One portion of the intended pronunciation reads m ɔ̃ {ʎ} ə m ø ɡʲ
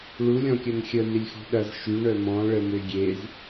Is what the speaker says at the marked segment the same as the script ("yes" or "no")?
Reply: no